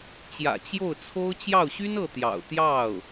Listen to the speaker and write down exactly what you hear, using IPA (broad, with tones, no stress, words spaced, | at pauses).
t͡ɕjä̰˨˩ t͡ɕjo˥˩ʊ̯t͡sʰo˥ʊ̯ t͡ɕjɑ˥˩ʊ̯ɕy˥nɤ˥˩ t̪jɑ̰˨˩ʊ̯ t̪jɑ˥˩ʊ̯